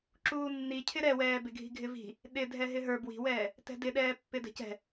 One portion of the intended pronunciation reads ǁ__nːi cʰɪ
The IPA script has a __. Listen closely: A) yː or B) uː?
B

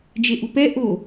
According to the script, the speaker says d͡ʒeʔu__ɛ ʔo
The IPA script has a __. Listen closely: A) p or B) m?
A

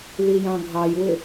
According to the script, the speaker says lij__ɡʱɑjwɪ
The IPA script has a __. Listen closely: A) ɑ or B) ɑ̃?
B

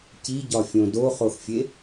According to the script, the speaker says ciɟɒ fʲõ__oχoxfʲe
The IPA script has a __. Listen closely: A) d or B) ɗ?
A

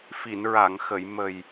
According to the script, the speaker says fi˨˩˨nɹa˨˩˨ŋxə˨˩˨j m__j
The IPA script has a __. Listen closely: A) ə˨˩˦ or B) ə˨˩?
B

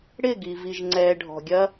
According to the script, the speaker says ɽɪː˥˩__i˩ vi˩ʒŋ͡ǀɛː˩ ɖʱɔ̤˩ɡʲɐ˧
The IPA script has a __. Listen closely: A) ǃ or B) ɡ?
B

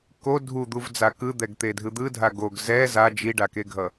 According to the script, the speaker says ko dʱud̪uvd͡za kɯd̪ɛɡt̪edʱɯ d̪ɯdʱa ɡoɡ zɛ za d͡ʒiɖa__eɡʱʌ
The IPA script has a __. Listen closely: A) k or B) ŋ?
A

